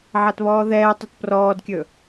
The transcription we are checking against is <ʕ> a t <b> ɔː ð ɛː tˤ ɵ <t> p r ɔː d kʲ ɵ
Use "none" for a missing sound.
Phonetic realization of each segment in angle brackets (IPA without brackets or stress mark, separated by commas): ʕ, β, t